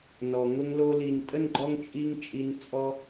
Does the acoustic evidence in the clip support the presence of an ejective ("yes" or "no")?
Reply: yes